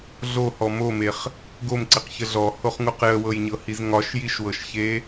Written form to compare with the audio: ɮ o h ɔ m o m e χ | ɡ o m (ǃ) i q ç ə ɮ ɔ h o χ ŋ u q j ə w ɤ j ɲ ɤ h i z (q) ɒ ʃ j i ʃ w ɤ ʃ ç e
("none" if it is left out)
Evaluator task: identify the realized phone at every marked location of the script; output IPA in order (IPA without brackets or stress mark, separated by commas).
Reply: ǀ, ŋ